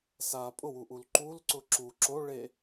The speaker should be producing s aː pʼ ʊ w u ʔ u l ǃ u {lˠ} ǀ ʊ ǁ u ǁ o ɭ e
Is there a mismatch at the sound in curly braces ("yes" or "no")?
yes